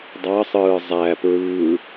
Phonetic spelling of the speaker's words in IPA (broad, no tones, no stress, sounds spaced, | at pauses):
dˤ ɑ sˤ ɯː zˤ æ p ɹ ɯː